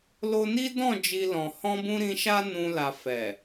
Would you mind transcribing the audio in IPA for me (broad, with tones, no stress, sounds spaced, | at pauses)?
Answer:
l o˧ n i˦ d ɔ̃˦˨ d͡ʒ i˧ l ɔ̃˨ h ɔ̃˧ b ũ˧ ɾ ĩ˧ ʃ a˦ n ũ˧ l a˨ f ɛ˨